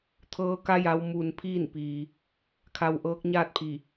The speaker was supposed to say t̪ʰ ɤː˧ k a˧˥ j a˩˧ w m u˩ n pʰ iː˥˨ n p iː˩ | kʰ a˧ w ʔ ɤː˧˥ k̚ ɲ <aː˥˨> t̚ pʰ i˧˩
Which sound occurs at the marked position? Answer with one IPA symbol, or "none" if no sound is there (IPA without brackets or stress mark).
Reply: aː˥˨